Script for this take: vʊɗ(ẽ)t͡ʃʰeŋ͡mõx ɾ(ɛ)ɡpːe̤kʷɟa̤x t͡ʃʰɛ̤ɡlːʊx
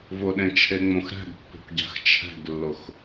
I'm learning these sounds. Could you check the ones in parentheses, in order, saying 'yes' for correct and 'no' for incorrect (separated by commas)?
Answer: yes, no